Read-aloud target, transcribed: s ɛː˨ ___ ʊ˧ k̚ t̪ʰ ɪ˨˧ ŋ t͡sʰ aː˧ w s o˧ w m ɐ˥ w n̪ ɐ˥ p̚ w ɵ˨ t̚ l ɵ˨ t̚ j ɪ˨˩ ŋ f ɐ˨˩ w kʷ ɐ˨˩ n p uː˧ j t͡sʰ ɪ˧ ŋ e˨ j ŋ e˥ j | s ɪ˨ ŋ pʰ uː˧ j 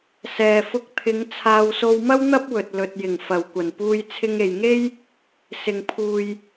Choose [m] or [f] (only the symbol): f